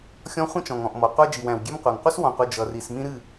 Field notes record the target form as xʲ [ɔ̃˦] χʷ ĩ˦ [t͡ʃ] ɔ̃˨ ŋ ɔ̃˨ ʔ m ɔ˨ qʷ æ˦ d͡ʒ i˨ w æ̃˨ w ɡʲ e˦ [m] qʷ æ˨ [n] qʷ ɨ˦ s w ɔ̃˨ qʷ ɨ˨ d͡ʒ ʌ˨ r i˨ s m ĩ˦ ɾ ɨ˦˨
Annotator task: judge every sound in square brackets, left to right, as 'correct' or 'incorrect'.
correct, correct, correct, incorrect: ŋ

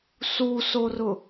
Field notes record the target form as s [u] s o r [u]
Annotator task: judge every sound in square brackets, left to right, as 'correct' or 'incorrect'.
correct, incorrect: ʊ

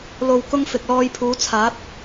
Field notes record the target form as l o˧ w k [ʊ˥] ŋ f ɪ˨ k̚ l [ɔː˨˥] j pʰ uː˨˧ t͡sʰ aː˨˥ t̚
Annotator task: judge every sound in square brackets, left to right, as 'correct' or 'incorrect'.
correct, incorrect: ɔː˧

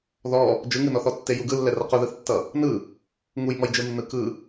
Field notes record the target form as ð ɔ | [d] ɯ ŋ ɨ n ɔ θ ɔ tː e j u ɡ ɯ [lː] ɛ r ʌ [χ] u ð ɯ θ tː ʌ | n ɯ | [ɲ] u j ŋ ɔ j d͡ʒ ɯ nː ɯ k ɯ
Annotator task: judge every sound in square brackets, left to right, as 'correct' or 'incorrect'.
incorrect: d͡ʒ, correct, incorrect: q, incorrect: ŋ

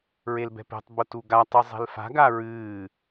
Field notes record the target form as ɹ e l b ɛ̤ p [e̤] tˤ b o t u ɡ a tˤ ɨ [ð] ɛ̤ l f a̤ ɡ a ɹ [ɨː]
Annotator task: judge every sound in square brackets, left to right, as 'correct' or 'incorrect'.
correct, incorrect: zˤ, correct

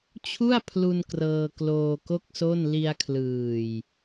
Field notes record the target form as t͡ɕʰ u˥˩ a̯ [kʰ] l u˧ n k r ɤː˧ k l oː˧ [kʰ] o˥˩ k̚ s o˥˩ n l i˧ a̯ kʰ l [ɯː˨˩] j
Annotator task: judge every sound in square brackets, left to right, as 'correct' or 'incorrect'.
incorrect: pʰ, incorrect: k, correct

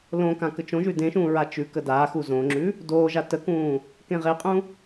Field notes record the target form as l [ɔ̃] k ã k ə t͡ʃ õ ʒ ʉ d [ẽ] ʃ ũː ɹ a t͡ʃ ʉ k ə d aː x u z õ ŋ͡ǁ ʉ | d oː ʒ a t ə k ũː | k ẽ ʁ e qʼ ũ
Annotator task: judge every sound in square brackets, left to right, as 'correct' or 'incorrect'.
incorrect: õ, correct

